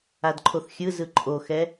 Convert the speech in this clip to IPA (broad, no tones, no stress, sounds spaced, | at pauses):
a d ǃʰ o θ xʲ ɯ z ɯ ǃʼ o x ɛ